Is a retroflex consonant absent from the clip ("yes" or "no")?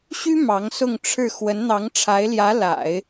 no